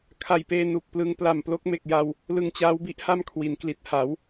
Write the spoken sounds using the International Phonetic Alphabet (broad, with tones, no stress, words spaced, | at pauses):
kʰa˨˩jpeː˧ nu˨˩k̚plɯ˧ŋ pla˨˩mplo˦˥k̚ me˨˩k̚ja˧w | lɯ˧ŋt͡ɕaː˦˥wbi˦˥ʔ ha˥˩mkʰwi˩˦nkli˨˩t̚ ha˩˦w